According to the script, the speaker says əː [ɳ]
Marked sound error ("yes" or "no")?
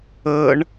no